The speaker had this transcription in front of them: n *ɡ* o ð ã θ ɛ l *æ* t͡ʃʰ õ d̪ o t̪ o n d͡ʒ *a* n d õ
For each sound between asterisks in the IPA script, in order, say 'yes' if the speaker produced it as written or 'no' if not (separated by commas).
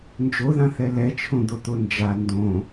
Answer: no, no, yes